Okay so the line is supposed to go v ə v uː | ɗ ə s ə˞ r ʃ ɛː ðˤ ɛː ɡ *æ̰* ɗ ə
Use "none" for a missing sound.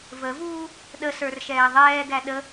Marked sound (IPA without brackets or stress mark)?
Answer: æ